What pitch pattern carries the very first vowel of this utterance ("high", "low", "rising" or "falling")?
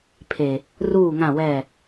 low